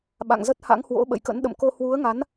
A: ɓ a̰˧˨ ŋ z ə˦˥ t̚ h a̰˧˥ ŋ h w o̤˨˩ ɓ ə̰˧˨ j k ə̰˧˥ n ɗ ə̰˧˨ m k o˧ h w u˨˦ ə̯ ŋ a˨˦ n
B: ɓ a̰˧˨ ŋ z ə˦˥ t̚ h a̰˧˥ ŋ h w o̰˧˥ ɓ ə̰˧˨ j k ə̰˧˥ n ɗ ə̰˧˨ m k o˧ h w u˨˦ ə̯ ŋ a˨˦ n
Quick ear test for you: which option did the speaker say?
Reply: B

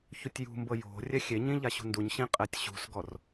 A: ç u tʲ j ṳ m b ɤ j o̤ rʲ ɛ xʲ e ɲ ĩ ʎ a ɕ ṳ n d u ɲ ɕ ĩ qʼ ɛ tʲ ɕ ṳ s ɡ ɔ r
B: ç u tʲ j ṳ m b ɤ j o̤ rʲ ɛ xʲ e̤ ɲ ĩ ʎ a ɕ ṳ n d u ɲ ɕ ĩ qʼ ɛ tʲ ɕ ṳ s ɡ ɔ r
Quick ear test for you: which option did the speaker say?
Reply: A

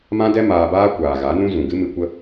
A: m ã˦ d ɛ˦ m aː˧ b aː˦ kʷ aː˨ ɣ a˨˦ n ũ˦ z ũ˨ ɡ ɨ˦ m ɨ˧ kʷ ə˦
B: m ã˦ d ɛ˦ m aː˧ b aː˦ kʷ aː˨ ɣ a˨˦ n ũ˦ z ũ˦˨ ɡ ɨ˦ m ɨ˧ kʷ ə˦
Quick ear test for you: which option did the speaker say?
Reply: A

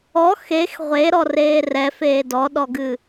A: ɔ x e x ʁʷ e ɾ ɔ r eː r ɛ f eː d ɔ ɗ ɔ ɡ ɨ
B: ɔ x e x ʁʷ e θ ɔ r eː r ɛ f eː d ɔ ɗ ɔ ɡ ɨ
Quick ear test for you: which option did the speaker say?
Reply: A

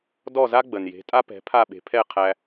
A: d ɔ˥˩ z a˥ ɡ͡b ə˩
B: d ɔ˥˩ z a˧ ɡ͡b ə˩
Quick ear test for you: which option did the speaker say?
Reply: A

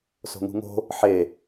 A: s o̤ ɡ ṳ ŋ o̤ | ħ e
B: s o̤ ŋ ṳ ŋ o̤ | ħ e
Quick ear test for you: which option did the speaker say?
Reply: B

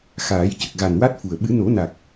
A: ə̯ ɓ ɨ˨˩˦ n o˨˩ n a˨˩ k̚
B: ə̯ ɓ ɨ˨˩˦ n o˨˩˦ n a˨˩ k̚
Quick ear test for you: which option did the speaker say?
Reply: B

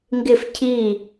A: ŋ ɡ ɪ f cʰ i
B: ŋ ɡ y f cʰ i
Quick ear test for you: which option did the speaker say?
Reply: A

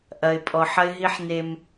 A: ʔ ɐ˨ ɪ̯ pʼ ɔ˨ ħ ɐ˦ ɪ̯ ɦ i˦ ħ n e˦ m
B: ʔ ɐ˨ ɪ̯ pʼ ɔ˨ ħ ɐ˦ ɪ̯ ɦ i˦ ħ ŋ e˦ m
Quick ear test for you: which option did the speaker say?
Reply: A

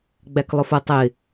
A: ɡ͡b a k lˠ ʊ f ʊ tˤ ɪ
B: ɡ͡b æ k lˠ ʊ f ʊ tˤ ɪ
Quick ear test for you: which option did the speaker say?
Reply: B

